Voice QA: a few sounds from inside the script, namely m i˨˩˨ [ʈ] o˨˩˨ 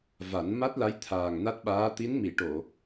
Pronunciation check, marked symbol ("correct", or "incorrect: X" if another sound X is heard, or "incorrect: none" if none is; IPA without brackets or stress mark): correct